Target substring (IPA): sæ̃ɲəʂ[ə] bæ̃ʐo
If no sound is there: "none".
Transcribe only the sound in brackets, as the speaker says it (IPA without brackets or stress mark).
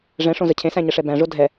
ɛ